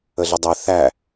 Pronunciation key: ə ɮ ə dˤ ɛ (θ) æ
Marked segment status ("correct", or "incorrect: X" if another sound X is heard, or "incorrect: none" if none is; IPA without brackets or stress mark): correct